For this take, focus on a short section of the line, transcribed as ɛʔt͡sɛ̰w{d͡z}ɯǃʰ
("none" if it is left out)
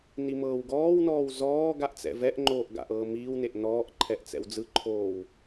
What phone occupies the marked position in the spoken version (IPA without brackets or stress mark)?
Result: d͡z